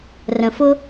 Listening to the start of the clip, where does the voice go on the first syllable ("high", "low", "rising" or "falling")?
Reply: low